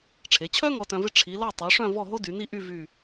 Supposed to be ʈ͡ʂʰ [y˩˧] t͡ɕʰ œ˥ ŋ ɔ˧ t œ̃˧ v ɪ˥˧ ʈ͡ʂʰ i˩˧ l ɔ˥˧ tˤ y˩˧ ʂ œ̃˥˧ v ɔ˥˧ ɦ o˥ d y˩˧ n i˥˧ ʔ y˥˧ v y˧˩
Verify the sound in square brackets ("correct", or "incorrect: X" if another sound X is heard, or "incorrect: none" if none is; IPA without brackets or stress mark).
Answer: incorrect: e˩˧